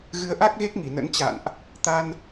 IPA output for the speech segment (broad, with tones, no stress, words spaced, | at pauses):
ɣɨ˨˦ə̯ʔa˦˥k̚ɣe˦˥k̚ ŋi˧˩nə̰˧˥n t͡ɕa̰˧˨nʔ | t̪a˧n